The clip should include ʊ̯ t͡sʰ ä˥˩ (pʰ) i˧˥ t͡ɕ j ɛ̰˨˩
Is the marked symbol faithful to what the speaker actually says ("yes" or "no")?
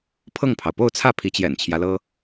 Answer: yes